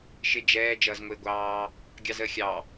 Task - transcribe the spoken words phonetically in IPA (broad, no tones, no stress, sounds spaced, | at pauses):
ʃ ɪ d͡ʒ ɛː d͡ʒ ʌː z ŋʷ ɪː ɡʷ ɑː | ɡʲ ɑ z əː xʲ ɑ